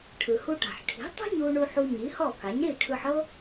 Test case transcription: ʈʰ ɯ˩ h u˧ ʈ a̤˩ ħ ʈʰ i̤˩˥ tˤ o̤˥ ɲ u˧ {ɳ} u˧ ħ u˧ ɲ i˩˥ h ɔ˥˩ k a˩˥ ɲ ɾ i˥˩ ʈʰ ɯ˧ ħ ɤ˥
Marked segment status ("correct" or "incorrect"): correct